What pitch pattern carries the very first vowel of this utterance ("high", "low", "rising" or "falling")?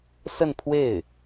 falling